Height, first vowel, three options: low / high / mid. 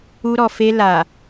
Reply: high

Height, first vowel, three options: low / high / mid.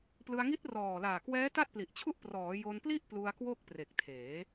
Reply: high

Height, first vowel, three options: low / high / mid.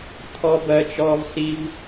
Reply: mid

